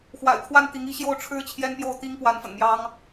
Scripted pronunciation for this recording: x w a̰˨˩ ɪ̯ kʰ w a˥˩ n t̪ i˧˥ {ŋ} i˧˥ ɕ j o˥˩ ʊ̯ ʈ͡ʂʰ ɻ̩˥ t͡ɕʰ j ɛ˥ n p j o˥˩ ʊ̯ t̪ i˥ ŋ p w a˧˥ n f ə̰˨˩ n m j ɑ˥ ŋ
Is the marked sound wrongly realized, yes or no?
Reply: no